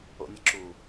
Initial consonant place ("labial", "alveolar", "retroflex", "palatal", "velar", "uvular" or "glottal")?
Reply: alveolar